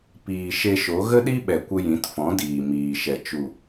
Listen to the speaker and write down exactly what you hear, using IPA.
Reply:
piː˨ʃe˧ʃo˨˦ ɣə˦ɗi˦ ɓɛ˨kʷə˧ jĩ˨˦tfɔ̃˨˦diː˨ miː˨ʃɛ˨ t͡ʃu˨

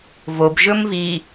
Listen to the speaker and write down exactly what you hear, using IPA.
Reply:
vobʒɵmvi

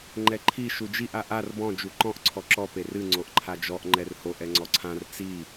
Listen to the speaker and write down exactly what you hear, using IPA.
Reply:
ŋ͡ǃɛǃʰi ʃud͡ʒiʔ aʔar bɔ̃ d͡ʒuǃɔ̃ʔ ǀʰɔǁɔ perɨ ŋ͡ǀoʔǃʰad͡ʒɔʔ ŋ͡ǃɛrhoʔ ɛŋ͡ǀɔǀʰãr t͡si

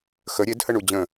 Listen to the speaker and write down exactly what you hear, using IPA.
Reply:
xə ɾʲedhə ɳud͡ʑə̃

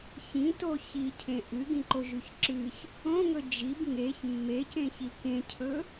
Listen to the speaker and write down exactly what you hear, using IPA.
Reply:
çĩto çicʰẽ ʔɨɡĩǃoʒʉç ǁɨç | õŋɵ d͡ʒib ŋeç mːecẽçi kẽcʰɵ

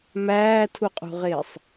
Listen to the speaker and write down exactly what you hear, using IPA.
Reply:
mæːtʰuqʼṳʁɪːsˤ

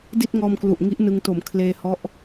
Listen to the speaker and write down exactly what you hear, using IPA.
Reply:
di˥˩t̚ŋɔː˧mklu˨˩ʔ ŋi˦˥ʔnɯ˧ŋto˨˩m kʰleː˧hɔ˦˥ʔ

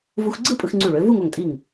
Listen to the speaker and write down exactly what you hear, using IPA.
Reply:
vu˧xɡ͡ǀɯ˥˧pʼɯ˧x ŋ͡ǀy˧˩ɭø˩˧ vu˥˧ŋ o˧˩ŋtʼi˧˩ŋ

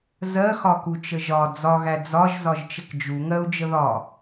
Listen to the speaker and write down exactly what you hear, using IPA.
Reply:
zɜxɒku t͡ʃəʒɒ d͡zɒɣæ d͡zɒʒ zɒʒt͡ʃəkd͡ʒu ŋɜu̯d͡ʒəðɒ

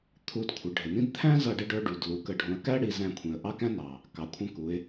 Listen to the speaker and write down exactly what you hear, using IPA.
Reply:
t̪ʰu˧dkʷʰɪ˩˧ɖʱɪ˩nĩ˥d t̪ʰæ̃˥zʌ˧ ɖɪ˧ɖə˞˧ ɖu˩d lu˩˧kə˩˧ɖʱũ˩˧ə̯kæ˥ ɽi˩˧zæ̃˧kʷʰĩ˩ə̯ ʔɑ˥kæ̃˥nɑ˩ | kɑ˩kʷʰə̃˧ku˩˧ɪ̯

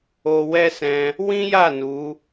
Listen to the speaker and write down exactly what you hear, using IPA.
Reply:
o˧ wɛ˦sɛ̃˧ | wĩ˦ja˦˨ nu˨˦

